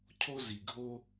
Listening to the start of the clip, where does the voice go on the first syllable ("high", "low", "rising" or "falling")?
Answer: high